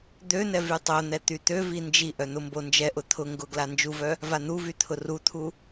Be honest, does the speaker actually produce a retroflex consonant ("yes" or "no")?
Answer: no